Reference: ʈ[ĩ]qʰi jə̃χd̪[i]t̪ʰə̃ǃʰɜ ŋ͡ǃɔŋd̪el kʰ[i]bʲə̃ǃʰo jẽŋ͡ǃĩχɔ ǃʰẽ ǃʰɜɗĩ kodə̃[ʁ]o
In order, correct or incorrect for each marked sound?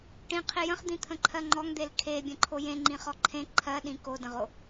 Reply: correct, incorrect: ĩ, incorrect: e, correct

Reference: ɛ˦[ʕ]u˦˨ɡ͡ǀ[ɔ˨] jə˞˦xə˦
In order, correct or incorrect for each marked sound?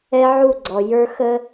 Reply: correct, correct

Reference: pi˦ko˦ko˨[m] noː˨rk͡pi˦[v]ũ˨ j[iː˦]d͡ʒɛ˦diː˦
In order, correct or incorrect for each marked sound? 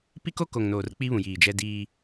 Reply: incorrect: ŋ, incorrect: β, incorrect: iː˨

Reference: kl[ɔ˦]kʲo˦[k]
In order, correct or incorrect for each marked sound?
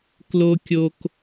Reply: incorrect: o˦, correct

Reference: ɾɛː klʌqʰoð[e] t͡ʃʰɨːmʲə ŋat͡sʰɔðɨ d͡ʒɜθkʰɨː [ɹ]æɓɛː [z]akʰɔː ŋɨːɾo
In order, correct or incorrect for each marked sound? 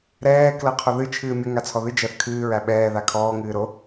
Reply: incorrect: ɨ, correct, incorrect: ð

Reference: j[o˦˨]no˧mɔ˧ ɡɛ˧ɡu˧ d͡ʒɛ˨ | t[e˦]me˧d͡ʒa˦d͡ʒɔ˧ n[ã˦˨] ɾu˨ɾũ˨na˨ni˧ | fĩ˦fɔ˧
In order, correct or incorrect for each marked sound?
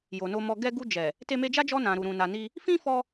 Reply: incorrect: o˨, incorrect: e˧, incorrect: ã˨

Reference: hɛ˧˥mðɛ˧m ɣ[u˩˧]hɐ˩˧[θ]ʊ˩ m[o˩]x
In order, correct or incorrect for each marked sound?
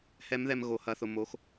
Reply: incorrect: o˩˧, correct, incorrect: o˩˧

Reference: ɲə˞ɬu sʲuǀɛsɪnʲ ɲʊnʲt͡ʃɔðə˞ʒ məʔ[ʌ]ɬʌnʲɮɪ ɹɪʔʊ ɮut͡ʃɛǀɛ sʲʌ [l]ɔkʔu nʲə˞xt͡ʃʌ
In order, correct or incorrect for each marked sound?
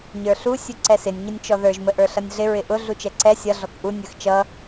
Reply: incorrect: ə˞, incorrect: ɮ

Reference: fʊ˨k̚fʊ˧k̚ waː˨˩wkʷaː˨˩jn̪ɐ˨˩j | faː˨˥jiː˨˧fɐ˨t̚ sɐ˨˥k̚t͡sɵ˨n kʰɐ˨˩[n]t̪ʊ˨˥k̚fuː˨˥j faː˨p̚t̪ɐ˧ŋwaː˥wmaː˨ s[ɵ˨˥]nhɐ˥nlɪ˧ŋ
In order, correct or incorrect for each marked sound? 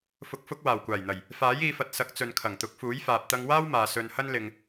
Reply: incorrect: ŋ, incorrect: ɵ˧

